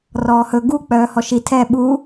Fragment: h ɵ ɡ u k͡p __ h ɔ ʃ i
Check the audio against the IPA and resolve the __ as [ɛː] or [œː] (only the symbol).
œː